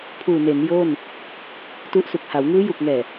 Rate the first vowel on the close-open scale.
close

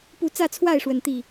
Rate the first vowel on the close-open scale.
close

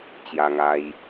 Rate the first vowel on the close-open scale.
open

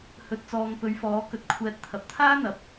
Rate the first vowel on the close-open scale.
mid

